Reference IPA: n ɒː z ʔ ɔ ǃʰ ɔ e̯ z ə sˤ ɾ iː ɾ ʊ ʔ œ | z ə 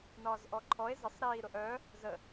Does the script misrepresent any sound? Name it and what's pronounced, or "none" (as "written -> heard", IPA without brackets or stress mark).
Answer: none